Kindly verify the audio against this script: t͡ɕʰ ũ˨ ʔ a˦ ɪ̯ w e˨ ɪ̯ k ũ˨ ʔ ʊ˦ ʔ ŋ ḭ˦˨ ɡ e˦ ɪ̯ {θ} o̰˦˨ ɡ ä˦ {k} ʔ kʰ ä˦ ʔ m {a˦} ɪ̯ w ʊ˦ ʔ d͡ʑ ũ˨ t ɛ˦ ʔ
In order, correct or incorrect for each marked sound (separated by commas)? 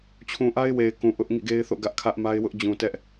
correct, incorrect, correct